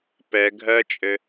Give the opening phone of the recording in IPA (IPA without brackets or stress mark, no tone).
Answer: p